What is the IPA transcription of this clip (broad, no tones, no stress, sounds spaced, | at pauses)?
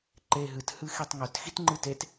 ǃ e ɦ ɨ t h ɨ x i tˤ ŋ ɵ t x i t ŋ͡ǃ ɨ t e t